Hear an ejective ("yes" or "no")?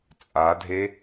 yes